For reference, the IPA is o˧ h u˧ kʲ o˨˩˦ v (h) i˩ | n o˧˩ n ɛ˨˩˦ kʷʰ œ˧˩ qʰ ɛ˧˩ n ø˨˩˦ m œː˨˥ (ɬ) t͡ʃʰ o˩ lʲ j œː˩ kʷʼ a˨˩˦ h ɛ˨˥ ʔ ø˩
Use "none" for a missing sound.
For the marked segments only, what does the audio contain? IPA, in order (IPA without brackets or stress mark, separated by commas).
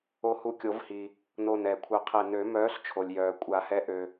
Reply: h, ɬ